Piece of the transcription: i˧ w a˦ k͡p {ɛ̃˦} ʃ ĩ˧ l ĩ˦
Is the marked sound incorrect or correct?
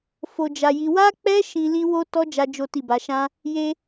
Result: incorrect